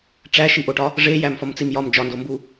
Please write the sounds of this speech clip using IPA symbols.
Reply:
ʈ͡ʂ æ ʃ i ʔ o ʈ ɒ | ʐ e j æ m f ɒ m t͡s i m j ɒ m d͡ʒ ɒ n d o m b u

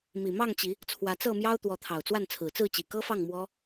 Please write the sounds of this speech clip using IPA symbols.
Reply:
m i˨˩ m ɑ˥˨ ŋ t͡ɕ i˨˦ | t͡sʰ w ä˨˦ t͡s ɤ˥˨ m j ɑ˦ ʊ̯ t̪ w ɔ˨˦ t̪ʰ ɑ˨˩ ʊ̯ t͡s w a˥˨ n t͡sʰ ɹ̩˨˩ t͡s ɹ̩˥˨ t͡ɕ i˨˩ k ɤ˦ f ɑ˥˨ ŋ m w ɔ˦

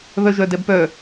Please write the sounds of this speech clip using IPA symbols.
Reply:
β œ ʒ œ d ɛ b p œ

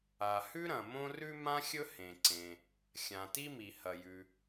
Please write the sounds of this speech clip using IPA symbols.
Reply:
a˩ h ʉ˥ ɾ ɐ̃˩ m õ˥ r ʉ˥ m ã˥ xʲ ɵ˥ h ẽ˩ ǀ ẽ˩ | xʲ ã˩ t i˥ m i˩ h ɐ˩ j ʉ˩

